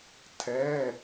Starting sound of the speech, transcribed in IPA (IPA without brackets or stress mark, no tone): tʰ